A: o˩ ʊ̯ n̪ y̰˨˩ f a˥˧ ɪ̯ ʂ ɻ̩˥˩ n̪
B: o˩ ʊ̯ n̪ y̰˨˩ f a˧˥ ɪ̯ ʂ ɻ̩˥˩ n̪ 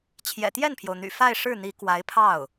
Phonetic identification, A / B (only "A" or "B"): A